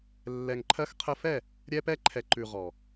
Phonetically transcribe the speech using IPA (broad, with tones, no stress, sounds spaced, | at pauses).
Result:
lː ɛ˨ ŋ ǃʰ ɜ˧ x qʰ ə˧ f ɛ˦˨ | ɾʲ ɛ˧ p ɛ˧ ǃʰ ɛ˨ ǃ ʉ˨ ʁ ɔ˨